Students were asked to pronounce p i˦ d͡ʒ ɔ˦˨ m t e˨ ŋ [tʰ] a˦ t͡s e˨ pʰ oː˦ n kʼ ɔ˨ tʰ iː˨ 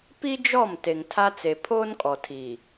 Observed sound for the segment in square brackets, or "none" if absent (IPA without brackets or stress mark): tʰ